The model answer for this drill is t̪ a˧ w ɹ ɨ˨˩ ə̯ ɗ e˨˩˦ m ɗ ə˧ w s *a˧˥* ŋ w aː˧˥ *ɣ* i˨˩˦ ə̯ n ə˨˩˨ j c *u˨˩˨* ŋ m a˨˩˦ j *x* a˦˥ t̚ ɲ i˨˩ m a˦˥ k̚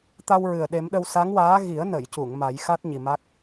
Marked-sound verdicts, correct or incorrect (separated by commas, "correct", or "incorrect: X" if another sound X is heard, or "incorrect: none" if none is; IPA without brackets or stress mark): correct, correct, correct, correct